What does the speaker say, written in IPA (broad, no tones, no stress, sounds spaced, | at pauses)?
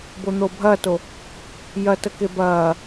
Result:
b o n̪ oː bʱ ɐː t o | j ɐ t ə k e b ɐː